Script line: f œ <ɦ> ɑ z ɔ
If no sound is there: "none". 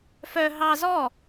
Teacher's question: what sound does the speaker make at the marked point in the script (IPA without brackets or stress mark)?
ɦ